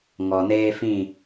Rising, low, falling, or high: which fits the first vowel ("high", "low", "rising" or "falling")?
low